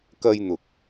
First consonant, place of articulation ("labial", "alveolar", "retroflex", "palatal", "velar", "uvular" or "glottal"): velar